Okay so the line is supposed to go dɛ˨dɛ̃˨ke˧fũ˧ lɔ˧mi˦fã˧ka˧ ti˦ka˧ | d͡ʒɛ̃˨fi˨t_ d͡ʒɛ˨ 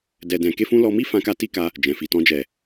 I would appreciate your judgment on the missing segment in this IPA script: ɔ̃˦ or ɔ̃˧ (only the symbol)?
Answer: ɔ̃˧